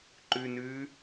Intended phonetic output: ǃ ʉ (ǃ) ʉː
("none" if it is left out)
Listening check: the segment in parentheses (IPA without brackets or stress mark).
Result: n